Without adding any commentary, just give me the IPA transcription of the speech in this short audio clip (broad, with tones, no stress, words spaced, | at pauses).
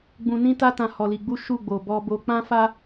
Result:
ɡ͡bũ˧nĩ˦ta˦tã˧ hɔ˧li˧ɡ͡bu˦ ʃu˦˨ɡ͡bo˨ bɔ˧bo˧ k͡pã˦fa˦